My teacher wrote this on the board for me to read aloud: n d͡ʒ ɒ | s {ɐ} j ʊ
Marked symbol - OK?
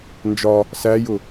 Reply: no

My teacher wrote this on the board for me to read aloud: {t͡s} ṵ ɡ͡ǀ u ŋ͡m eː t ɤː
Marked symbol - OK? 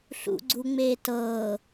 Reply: no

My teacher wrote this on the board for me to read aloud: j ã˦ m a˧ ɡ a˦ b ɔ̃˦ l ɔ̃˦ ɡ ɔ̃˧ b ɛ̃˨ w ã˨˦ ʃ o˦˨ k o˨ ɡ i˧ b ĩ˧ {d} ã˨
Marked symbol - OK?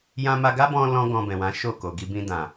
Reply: yes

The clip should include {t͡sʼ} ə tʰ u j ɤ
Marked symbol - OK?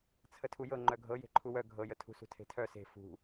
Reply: no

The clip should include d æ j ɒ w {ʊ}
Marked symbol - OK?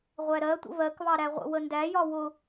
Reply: yes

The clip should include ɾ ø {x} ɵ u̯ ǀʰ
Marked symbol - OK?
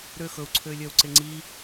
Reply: yes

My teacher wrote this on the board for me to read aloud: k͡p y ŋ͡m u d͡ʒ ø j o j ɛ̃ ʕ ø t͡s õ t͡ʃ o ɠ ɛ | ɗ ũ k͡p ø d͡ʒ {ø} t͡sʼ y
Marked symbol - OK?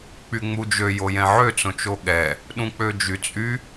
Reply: no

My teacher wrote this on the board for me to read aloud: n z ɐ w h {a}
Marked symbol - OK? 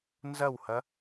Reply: no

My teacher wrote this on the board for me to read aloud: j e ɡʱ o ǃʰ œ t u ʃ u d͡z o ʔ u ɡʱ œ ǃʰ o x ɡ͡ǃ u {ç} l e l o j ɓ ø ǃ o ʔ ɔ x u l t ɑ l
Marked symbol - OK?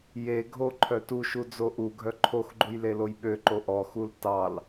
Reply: no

